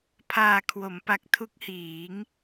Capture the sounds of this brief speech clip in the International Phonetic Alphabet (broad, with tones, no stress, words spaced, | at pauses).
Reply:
pʰaː˨˩kʰwo˩˦mpa˨˩k̚ tʰu˦˥k̚hiː˩˦ŋ